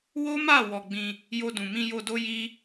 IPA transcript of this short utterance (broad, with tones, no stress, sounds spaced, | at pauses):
w o˦ m a˦˨ w ɔ˧ ɡ͡b ĩ˧ | j o˧ d ũ˨ m ĩ˧ j o˧ d o˦ j i˦